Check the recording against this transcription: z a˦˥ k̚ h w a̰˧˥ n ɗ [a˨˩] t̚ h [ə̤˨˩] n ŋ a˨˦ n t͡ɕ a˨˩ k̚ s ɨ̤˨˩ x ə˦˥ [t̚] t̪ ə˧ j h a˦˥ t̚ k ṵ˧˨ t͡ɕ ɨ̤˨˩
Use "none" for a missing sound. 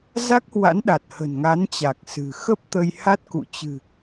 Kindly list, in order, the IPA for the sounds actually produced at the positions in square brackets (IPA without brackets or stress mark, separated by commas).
a˨˩, ə̤˨˩, p̚